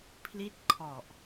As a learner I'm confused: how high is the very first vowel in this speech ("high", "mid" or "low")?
high